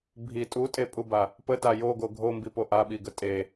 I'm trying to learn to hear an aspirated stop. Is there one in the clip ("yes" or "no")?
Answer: no